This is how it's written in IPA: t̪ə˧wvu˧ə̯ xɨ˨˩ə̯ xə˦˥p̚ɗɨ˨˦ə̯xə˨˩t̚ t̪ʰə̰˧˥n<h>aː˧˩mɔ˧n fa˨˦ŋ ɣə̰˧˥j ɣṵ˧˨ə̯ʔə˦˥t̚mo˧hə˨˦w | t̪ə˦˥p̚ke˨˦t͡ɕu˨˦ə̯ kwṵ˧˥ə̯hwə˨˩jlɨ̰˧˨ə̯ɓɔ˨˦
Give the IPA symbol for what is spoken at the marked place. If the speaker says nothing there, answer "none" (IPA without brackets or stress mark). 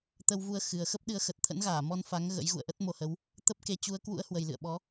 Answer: ɣ